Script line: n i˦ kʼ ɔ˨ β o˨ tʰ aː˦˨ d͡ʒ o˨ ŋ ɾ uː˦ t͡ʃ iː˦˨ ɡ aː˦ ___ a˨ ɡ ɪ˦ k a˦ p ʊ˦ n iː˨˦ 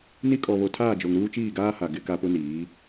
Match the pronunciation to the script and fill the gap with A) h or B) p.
A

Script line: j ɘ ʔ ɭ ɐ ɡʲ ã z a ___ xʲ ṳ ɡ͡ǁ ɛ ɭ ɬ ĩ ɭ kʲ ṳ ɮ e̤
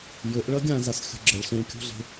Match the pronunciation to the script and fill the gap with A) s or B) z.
A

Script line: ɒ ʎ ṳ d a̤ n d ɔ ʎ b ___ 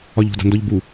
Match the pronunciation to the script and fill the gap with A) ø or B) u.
B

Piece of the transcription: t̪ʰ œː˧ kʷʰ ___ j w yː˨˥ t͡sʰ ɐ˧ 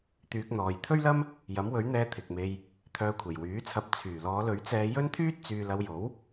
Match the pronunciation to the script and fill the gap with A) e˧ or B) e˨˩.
B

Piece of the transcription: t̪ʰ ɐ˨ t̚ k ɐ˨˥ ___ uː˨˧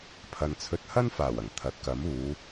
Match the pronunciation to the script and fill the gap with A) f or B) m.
B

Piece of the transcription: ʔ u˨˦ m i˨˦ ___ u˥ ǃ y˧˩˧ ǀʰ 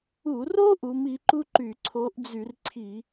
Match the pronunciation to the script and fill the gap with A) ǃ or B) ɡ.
A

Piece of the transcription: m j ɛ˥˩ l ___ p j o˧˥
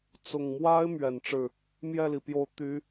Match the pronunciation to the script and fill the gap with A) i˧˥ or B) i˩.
B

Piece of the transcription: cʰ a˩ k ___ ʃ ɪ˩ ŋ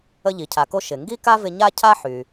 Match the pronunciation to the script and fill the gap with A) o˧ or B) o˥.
A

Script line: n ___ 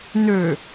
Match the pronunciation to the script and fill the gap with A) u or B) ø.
B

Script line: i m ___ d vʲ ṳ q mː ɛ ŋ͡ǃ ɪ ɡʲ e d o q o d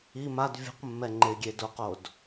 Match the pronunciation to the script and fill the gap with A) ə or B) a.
B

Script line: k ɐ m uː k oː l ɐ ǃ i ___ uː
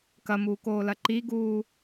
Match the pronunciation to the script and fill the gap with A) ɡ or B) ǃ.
A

